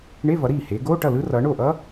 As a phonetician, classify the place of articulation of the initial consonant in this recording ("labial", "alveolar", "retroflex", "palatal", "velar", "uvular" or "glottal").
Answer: retroflex